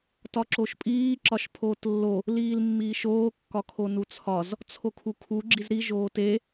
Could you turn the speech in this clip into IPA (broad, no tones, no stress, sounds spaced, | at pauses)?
t ɒ ǁ o ʃ pʼ iː ǁ ɒ ʃ pʰ oː t lː o | l iː l mː iː ʃ oː kː ɒ kʰ o n u t͡sʰ ɒ z | t͡sʰ o kʰ u kʰ u ɡ͡ǁ i z ɾ i ʒ oː t e